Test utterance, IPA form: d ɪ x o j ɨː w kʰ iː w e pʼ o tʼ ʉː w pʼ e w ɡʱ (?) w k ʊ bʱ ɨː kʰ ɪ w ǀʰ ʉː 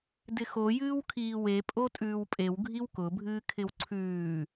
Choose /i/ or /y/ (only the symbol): i